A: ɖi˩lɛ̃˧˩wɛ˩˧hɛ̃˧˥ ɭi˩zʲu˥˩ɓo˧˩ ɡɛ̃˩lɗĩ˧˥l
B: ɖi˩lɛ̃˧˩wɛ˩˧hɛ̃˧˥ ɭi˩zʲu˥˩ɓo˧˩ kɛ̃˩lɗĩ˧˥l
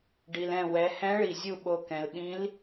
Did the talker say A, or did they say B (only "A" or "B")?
B